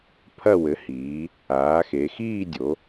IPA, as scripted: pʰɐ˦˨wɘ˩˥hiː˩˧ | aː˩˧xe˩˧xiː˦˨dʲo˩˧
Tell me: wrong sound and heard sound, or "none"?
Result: none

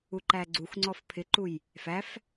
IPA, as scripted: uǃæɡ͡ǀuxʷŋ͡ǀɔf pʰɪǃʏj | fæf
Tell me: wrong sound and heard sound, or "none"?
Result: ʏ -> u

